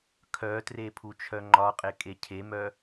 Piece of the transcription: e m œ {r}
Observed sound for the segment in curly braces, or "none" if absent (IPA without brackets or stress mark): none